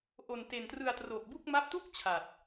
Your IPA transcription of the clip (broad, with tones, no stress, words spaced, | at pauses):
ʔo˧nte˧n trɯ˧a̯tro˨˩k̚bu˥˩k̚ ma˦˥p̚tu˥˩k̚ t͡ɕʰa˨˩t̚